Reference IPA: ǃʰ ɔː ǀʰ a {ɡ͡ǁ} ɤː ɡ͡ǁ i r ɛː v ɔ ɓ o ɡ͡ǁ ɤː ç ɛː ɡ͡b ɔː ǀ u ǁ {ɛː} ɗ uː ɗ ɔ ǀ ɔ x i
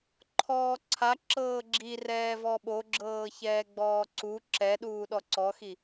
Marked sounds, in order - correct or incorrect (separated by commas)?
incorrect, incorrect